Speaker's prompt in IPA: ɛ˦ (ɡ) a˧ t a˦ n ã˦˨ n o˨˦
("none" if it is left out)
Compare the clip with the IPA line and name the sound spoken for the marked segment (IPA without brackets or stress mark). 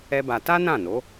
b